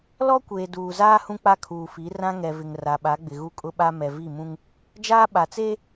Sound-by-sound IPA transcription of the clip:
l ɔ˦ kʷ eː˨ d uː˨ z aː˦ h ũ˦ k͡p a˦ kʰ uː˨ f i˨˦ r ã˦ ŋ ɛ˨ v ɪ˨ ŋ r a˨ ɓ a˨˦ ɡ͡b ɪ˨ ɣ u˦ kʼ ʊ˦ ɓ a˦ m ɛ˨ v i˦˨ m ũ˦ ŋ | d͡ʒ aː˦ ɓ a˨ t͡s eː˦

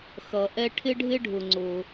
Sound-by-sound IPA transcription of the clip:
x ʌ˩ ʔ ɛ˧ ʈʰ ɪ˥ ɖʱ ɪ˥ ɖʱ ʊ˩ ŋ͡ǀ ʊ˩

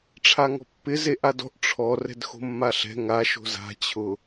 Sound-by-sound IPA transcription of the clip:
ʈ͡ʂʰ a ŋ ɔ̤ pː ɪ z e ʔ a d ɔ̤ ʔ ʈ͡ʂʰ ɔ r ɛ̤ d x o̤ mː a ɬ ɛ̤ ŋ a ʃ o̤ z a̤ t͡ɕʰ ʊ

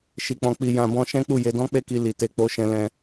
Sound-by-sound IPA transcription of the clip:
ʃ i˨ k͡p ɔ̃˨ k͡p i˨ j ã˨ b ɔ̃˧ ʃ ɛ̃˦ k͡p u˦˨ j e˧ d ɔ̃˦ k͡p e˦˨ k i˧ l i˨ t e˧ k͡p o˧ ʃ ɛ̃˧ l ɛ̃˧

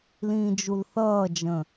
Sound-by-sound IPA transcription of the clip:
l ĩː d͡ʒ u l θ ʌː d͡ʒ ə̃

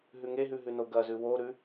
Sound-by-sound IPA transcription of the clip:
ɦ ʉ ŋ e ɦ ʉ ɦ ʉ n o ɡ ɐ z ʉ w o ɾ ʉ

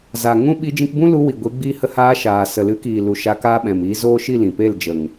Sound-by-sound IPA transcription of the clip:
z a˨ ŋ ũ˦ ɓ i˧ d͡ʒ ĩ˧ k b ũ˦ l u˧ w i˨ ɡʷ i˨˦ ɡ͡b iː˧ h ə˧ h aː˧ ʃ aː˨ s ə˨ l ɨ˨˦ k iː˨ l u˨ ʃ a˧ k a˦ ɓ ɛ̃˨ m iː˧ z oː˦ ʃ i˦˨ l ĩ˨ p e˦˨ l d͡ʒ ə˨ ŋ

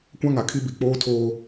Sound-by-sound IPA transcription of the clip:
kʷ ã˦ ŋ a˨ kʰ i˦ b i˨ k͡p oː˦ tʰ oː˦

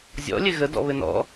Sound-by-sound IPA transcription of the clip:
zʲ ɔ̰ lʲ ɘ ɣ ə d ɔ̰ β ɘ n ɔ̰

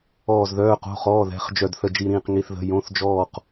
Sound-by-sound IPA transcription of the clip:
ɔː˧˩ z ð œː˩˧˩ q o̤˩˧˩ χ ɔː˩˧˩ ð ɛ̤˩˧˩ χ d͡ʒ œ˧˩ d θ ə˧˩ d͡ʒ i˧˩ ɾ ĩː˧˩ q ŋ i˩˧˩ θ ð ə̤˩˧˩ j õ˩˧˩ θ d͡ʒ ɔː˧˩ q

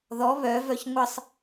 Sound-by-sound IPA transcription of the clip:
ð ɔ β œ v œ ç ŋʷ ə sˤ

